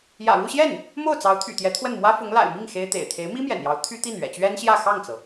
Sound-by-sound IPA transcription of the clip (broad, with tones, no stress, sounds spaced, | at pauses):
j ä̰˨˩ ɻ u˥˧ ɕ j ɛ˥˩ n | m o˥˩ ʊ̯ t͡s ɑ˧˥ ʊ̯ t̪ʰ y̰˨˩ t̪ j ɛ˧˥ t̪ʰ w ə˥˩ n m w ä˥ f ʊ˧˥ ŋ l a̰˨˩ ɪ̯ m i˥˩ ŋ x e˥ ɪ̯ t̪ ḛ˨˩ ɪ̯ t̪ʰ e˧˥ ɪ̯ m i˥ m j ɛ̰˨˩ n j ɑ˧˥ ʊ̯ t̪ʰ y˥ t̪ i˥˩ n ɥ ɛ̰˨˩ t͡ɕ ɥ ɛ˥ n ɕ j ä˥˧ x ɑ˥˩ ŋ t͡s ɤ˩